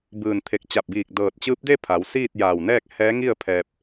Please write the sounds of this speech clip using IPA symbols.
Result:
b ɯː˧˩ n t̪ʰ e˧˩ k̚ t͡ɕ a˧˩ p̚ b iː˧˩ k̚ d ɤː˧˩ t̚ t͡ɕ ɯː˧˥ p̚ d e˥˨ pʰ a˩˧ w s iː˥˨ t̚ j a˧˩ w n ɛː˥˨ k̚ h ɛː˧˥ ŋ i˥˨ ə̯ pʰ ɛː˧ p̚

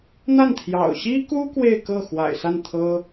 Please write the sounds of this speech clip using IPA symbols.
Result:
n̪ a˥˩ n t̪ʰ j ɑ̰˨˩ ʊ̯ ɕ i˥ k u˥ k w e˥˧ ɪ̯ k ɤ˥˩ x w a̰˨˩ ɪ̯ s a˥˩ n t̪ʰ ɤ˥

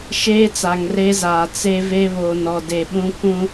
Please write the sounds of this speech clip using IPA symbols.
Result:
ʃ eː˦ t͡s a˨ ŋ r e˦ z aː˨ t͡s e˦ v e˦ β o˨ n ɔ˨ d e˨ ɓ ũ˦ k ũ˦

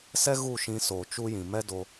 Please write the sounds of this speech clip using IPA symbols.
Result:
s ɛ˦ ɣ u˦˨ ʃ ĩ˧ s oː˨ t͡ʃ u˦ j ĩ˨ m ɛ˦ d o˧

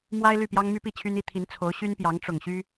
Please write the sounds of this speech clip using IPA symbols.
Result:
m w a˥ ɪ̯ l y˥˩ p j ɑ˥ ŋ m y˥ p i˥˩ t͡ɕʰ y˥ n i˥ t̪ʰ i˧˥ n t͡sʰ o˧˥ ʊ̯ ɕ y˥ n p j ɑ˧˥ ŋ ʈ͡ʂ ʊ˨˩ ŋ ɕ y˥

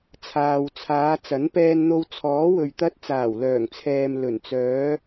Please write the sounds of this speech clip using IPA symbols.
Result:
t͡sʰ aː˨ w t͡sʰ aː˨˧ t͡s ɐ˨˥ n p ɛː˧ n n̪ o˧ w t͡sʰ ɔː˨˥ w ɵ˨ ɥ t̪ ɐ˧ t̚ t͡s aː˨˩ w l œː˨˩ ŋ t͡sʰ ɛː˨ m l ɵ˨˩ n t͡s œː˨˧

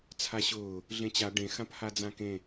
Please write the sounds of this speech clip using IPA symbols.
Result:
t͡sʰ a ɕ ʊː | ɮ ẽ t͡ɕ a ɖ ẽ x ã p h a d͡z ã k ẽ

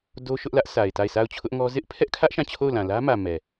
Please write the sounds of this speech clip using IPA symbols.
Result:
d o˦ ʃ ʊ˦ ʔ l ä˦ ʔ sʰ a˨ ɪ̯ t a˦˨ ɪ̯ s a˦˨ ʊ̯ t͡ɕʰ ʊ˦ ʔ ŋ ɔ˦ z ɪ˦ ʔ pʰ ɛ˦ ʔ kʰ ä˦ ʔ ʃ ã˦˨ t͡ɕʰ o˦˨ ʊ̯ l ã˨ l ä˦ m ä˨ m ɛ˨

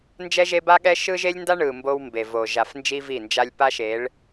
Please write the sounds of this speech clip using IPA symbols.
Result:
n d͡ʒ ɛ˦ ʒ e˦ b a˦ ɠ ɛ˦ ʃ ɯ˦ ʒ e˦ lʲ n d a˦ ɳ ɯ˨ m b o˦ w m b e˨ v o˨ ʒ a˨ f n d͡ʒ i˦ v i˦˨ n d͡ʒ a˦ lʲ p a˦ ʃ e˨˦ ɭ

